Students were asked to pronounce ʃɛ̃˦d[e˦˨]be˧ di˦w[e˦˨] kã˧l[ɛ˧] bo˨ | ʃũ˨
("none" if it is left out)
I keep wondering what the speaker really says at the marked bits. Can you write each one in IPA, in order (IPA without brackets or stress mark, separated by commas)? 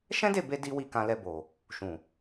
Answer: e˦˨, i˦˨, ɛ˧